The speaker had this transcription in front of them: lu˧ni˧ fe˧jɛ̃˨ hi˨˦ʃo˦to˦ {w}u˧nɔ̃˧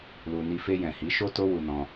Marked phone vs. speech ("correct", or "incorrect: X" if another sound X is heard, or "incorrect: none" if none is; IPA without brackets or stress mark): correct